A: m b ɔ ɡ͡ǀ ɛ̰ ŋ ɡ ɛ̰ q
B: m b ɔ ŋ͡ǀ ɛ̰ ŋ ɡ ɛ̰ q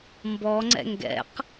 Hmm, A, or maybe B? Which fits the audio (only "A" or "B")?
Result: B